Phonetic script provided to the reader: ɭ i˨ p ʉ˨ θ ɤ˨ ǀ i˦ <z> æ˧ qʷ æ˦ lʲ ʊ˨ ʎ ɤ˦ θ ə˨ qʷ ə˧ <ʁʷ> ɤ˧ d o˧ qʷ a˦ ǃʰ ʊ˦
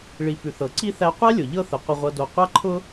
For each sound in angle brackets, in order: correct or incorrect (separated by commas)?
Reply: incorrect, correct